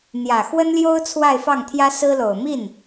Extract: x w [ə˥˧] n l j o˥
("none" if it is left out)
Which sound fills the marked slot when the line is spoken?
ə˥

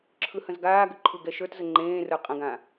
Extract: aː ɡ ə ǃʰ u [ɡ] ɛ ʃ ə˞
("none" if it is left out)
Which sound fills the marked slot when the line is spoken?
ɡ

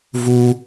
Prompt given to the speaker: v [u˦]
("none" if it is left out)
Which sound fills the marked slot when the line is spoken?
u˦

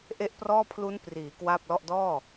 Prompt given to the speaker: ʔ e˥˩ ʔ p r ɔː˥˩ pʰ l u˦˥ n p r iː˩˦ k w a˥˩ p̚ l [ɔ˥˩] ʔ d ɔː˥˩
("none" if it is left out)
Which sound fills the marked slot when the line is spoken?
ɔ˥˩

